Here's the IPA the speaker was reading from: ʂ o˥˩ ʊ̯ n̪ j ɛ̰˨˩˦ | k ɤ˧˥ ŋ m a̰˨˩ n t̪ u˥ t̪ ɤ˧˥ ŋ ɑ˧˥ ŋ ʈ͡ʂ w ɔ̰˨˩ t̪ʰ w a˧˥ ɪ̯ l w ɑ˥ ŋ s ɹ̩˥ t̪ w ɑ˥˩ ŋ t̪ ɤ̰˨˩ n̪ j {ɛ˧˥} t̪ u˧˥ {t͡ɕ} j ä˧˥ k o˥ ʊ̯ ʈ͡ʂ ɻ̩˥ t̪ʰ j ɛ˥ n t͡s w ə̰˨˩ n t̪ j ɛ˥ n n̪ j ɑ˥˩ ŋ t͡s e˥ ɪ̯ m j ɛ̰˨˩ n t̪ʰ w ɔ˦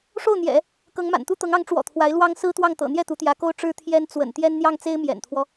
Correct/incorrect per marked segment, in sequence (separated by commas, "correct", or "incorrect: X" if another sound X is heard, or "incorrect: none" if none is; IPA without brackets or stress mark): incorrect: ɛ˥˩, incorrect: t̪